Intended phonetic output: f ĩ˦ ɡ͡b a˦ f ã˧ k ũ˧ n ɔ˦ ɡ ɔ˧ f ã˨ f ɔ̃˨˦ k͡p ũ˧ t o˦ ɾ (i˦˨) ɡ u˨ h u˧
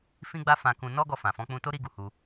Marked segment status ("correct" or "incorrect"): incorrect